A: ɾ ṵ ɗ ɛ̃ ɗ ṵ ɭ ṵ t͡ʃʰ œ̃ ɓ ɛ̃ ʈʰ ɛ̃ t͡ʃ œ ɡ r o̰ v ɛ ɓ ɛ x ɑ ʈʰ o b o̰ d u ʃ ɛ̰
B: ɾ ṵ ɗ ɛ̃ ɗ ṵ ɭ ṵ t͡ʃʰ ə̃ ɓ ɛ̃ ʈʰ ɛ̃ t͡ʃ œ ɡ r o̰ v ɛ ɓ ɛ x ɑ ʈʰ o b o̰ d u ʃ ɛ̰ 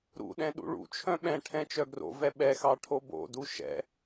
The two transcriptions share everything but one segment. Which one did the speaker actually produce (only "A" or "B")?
A